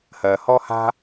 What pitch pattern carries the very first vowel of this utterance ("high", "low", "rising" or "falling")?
low